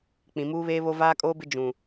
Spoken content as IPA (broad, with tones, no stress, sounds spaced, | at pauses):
k͡p ĩ˨ m uː˦ β eː˦ β o˦ v aː˦ kʼ oː˦ b ɪ˦ d͡ʒ ũ˨